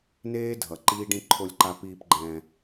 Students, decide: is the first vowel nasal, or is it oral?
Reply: oral